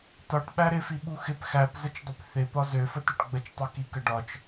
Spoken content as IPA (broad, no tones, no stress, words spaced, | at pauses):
tɒʈ ɓæɾɪfi ɓuxɪp xæpzət͡ʃdˤɪp θɪ pɒzøfətøʈ ɡ͡bət͡ʃtˤukikə ɖɒt͡ʃ